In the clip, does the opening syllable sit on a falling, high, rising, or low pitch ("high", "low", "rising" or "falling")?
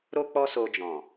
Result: high